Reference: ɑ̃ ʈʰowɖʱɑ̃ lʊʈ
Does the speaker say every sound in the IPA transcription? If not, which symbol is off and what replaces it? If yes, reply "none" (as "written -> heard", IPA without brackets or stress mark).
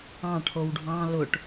none